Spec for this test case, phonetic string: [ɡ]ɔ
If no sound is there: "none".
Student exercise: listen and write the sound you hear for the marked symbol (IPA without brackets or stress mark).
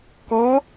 k